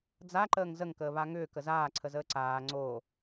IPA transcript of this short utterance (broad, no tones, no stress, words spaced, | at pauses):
d͡zaǃəːŋ zəŋkəːβa ŋʏːkə zaːǀʰəzəː ǀaː ŋ͡ǀoː